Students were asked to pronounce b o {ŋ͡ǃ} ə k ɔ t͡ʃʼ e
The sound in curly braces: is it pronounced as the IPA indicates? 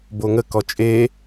no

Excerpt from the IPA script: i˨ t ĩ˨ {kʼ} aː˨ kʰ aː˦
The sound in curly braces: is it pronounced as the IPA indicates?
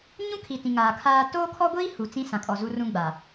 no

